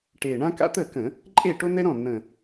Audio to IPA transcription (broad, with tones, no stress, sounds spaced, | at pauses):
ʈ e˨˩ ɳ ã˥ k a̰˥ t̪ ə˥˩ k ə̃˧˩˧ | ǃʼ e˥˩ ʈ o˥ n̪ ɛ˥ ɾ ɔ̃˥˩ n̪ ə̃˨˩